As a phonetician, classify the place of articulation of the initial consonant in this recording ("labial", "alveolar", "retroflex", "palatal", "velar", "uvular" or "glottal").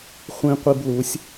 uvular